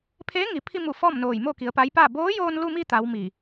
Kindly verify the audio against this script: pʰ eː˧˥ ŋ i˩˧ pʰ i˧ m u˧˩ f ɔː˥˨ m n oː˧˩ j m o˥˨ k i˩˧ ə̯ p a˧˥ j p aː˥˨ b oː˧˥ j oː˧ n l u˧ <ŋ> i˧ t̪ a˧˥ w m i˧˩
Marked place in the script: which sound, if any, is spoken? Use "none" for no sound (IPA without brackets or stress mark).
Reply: m